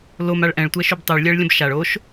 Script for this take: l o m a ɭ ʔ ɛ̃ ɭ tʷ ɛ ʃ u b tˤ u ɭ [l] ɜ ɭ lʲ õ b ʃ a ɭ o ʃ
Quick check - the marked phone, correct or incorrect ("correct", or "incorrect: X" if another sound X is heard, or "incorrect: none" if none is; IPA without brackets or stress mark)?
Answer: incorrect: lʲ